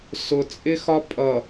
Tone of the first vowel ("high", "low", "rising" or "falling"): low